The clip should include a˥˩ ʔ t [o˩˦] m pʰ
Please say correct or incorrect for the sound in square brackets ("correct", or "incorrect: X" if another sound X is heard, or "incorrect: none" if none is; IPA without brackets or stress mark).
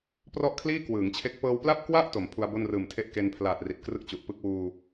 correct